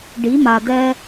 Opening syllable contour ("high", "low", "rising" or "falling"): rising